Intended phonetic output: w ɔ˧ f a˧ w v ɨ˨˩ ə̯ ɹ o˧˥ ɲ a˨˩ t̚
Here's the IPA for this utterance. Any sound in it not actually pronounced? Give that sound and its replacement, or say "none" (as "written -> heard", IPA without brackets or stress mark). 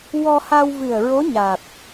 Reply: f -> h